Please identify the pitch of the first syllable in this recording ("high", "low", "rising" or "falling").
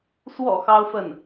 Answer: low